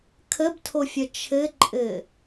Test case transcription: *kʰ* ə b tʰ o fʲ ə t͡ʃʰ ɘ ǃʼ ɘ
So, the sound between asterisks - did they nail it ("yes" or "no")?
yes